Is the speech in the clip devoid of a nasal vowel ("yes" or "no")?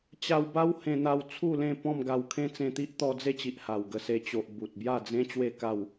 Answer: no